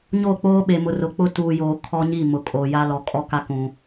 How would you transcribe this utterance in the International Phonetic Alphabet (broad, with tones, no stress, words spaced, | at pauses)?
ɲoː˦˨k͡poː˦ɓe˨mʊ˨ rʊ˨k͡pʊ˦ tuː˨joː˨ kʰɔ˦ɲi˦˨mʊ˨ kʼo˨ja˦ lɔ˨kʼɔ˦ ka˦kũ˨